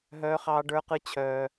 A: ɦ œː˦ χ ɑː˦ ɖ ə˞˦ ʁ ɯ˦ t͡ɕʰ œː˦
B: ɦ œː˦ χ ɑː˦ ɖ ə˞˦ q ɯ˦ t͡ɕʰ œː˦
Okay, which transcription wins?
B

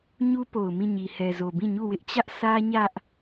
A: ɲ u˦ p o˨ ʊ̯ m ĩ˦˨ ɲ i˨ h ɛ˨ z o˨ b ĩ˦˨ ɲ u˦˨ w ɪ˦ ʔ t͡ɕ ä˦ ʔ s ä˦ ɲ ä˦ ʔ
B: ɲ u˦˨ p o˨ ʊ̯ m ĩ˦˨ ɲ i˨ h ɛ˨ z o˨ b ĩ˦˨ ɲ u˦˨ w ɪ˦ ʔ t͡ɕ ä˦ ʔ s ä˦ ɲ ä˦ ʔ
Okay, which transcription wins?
A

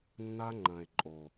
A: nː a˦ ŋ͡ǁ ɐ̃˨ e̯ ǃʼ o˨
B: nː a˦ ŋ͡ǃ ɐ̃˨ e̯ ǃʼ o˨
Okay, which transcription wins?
B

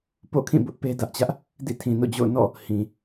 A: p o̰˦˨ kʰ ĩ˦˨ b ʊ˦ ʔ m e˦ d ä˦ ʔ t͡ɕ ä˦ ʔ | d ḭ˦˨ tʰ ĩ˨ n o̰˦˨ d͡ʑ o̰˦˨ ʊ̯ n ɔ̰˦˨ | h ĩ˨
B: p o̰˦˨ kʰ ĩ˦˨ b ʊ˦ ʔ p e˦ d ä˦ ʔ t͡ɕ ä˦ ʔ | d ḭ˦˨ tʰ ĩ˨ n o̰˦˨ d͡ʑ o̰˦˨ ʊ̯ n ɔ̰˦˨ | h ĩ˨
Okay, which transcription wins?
B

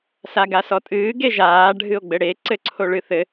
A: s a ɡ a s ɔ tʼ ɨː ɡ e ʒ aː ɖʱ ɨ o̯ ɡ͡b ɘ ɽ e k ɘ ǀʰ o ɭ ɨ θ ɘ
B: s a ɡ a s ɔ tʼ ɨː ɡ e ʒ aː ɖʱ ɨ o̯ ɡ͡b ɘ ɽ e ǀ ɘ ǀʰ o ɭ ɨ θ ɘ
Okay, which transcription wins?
B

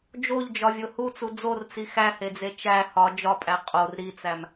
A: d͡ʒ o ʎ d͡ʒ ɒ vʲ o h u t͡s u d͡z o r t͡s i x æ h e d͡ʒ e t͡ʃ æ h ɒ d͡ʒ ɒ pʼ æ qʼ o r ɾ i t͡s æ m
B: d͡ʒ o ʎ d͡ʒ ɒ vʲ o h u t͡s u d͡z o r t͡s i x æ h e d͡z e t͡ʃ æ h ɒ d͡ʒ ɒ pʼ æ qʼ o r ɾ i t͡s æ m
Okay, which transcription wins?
B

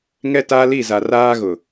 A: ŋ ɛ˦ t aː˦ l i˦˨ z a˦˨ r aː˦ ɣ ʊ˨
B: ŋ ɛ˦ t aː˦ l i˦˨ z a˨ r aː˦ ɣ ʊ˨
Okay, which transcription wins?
B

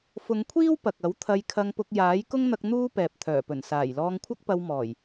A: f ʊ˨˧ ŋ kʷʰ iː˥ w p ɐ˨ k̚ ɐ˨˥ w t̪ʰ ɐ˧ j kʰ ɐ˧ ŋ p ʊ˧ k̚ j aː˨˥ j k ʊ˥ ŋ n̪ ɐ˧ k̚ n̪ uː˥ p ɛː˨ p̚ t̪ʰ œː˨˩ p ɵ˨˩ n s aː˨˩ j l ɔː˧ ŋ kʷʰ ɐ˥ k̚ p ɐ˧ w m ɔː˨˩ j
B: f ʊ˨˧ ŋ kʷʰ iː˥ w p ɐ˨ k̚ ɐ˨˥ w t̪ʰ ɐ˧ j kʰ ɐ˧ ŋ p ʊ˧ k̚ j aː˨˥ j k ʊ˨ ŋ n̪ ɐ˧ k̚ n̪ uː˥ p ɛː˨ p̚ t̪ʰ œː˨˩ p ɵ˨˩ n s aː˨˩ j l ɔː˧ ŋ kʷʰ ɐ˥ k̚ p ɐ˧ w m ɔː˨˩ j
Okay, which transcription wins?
A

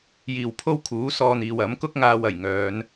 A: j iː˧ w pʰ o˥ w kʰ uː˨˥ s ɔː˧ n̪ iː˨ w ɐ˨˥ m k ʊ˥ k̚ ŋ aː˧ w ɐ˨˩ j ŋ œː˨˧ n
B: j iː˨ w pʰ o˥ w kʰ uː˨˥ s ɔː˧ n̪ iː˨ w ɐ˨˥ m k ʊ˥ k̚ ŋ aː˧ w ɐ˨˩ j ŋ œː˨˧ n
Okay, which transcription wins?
B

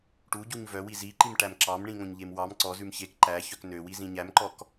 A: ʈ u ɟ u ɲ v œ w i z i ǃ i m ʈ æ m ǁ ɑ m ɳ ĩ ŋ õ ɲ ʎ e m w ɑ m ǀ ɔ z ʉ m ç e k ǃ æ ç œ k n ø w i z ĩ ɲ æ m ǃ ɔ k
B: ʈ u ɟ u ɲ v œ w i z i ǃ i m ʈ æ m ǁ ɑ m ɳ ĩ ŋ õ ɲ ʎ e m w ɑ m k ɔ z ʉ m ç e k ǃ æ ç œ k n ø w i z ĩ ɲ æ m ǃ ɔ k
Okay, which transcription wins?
A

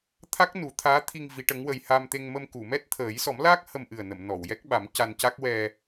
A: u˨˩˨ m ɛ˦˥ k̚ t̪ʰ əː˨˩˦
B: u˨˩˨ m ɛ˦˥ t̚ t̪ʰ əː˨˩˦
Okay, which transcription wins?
B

